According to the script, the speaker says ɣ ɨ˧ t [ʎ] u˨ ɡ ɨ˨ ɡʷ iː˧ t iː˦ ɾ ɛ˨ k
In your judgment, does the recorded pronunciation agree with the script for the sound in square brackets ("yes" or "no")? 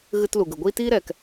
no